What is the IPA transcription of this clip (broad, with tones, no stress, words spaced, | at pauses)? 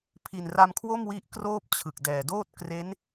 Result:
pʰi˨˩nra˧mkʰwo˥˩m wi˦˥ʔkroː˥˩p̚ t͡ɕʰɯ˨˩k̚dɛː˨˩doː˥˩t̚ kre˦˥n